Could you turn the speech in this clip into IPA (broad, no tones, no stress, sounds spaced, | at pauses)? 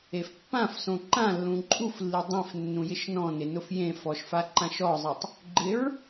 e f pː ã f s õ ǃ ã lː ũ ǃʼ u f lː i dˤ ẽ f nː ũ j ɪ ʃ n ɔ̃ n ɪ n ʊ f j ẽ f ɔ ʃ f a ǃ ã ʃ ɔ zˤ i tˤ | ɡ͡ǃ ɪ ɹ